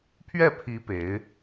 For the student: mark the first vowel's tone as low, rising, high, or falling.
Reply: falling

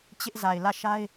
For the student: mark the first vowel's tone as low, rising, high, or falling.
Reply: high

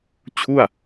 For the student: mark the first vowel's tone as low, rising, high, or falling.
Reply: falling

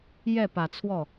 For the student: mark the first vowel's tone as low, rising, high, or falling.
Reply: falling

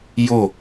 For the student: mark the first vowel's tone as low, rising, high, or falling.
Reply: falling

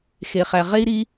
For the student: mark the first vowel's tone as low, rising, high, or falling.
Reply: low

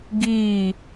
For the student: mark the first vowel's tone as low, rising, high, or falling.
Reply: falling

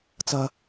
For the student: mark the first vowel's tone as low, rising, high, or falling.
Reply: high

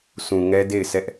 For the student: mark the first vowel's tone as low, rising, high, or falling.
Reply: low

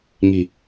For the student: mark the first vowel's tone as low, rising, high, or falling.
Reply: low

